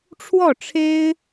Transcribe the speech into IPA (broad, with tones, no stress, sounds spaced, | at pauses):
ʈ͡ʂʰ w ɔ˥˩ ʈ͡ʂʰ e˥ ɪ̯